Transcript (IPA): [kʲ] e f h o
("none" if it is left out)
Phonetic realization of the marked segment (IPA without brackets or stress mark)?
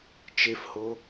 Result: t͡ʃ